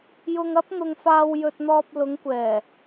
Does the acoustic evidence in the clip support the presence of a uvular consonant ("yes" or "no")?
no